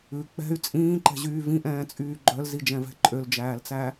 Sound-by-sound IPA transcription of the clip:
ʉ k͡p ɛ̤ y̯ t͡sʼ ĩː ǃ ɛ̤ ʑ yː v ĩ ʔ ɛ̃ː t͡sʼ yː ɡ͡ǃ œ l z i d͡ʒ ɛ̃ v ɛ̤ ǃʼ ø l d͡ʒ æː l t͡s æ

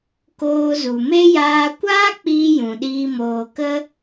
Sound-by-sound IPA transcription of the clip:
k oː˧ z u˨ m e˦ j aː˧ kʷ aː˦ k͡p iː˧ j ũ˨ ɗ iː˧ m oː˧ k ə˦

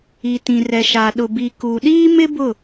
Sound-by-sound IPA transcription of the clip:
i˨ t ĩ˨ r ɛ˨ ʃ a˨ ɗ ʊ˨ b i˨ k u˨ ɗ iː˦ m ɪ˦ b ʊ˦˨

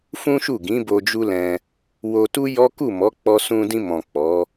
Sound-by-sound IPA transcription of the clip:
f ũ˦ ʃ u˦˨ ɡ ĩ˨˦ b o˧ d͡ʒ u˦ l ɛ̃˧ | w o˧ t u˦ j ɔ˦ k u˦˨ m ɔ˨˦ k͡p ɔ˧ s ũ˧ d ĩ˧ m ɔ̃˨ k͡p ɔ˨˦

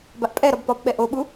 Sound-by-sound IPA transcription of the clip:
b a ʔ pʼ ɛ ɾ ɒ b p ɒ p ɓ ɛ ʔ o ɓ u

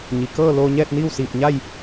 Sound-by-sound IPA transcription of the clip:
ɲ i˩ k ɤː˥˨ l oː˧ ɲ ɛː˥˨ t̚ n iː˥˨ w s iː˧˩ p̚ ɲ a˥˨ j

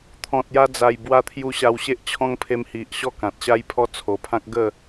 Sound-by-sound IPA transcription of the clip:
t̪ʰ ɔ̃˨ t̚ j a˧ d͡z a˨˩ j b w a˧ t̪ʰ j u˧ ɕ a˧ w ɕ e˦ ʔ t͡ɕʰ ɔ̃˦ ŋ pʰ e˧ m h i˨ ʔ ɕ ɔ˥˧ k ã˨ t̚ ɕ a˦ j pʰ ɔ˦ t͡sʰ o˨˩ pʰ ã˦ k̚ ɡ ə˥˧

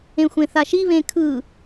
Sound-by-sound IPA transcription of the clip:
ẽ xʷ ẽ θ a ʃ i β ẽ kʰ ɯ

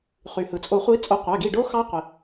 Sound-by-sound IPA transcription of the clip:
χ y˩ h ɯ˩ t͡sʼ o˨˩˦ χʷ i˨˦ t͡sʼ o˨˦ qʷ æ˩˧˩ ɡ i˦˨ ɖ o˦˥ x ɑ˦˥ qʷ i˩

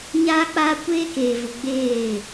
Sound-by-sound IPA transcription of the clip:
ɲ aː˦ k͡p aː˦ kʷ eː˦ k eː˨ v ʊ˨ ɡ͡b eː˦˨

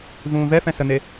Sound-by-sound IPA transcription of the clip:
v ũː v ɛ f ɛ̃ s ə n̪ e

